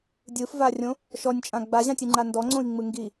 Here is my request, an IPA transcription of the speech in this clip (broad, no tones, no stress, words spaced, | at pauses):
dʲɯfvarʲõ | ʃɔnʲt͡ʃʼã ɡ͡baʑãtʲɨŋ͡ǃa ndɔŋ͡ǀõi̯ŋ͡mɯ ŋɡi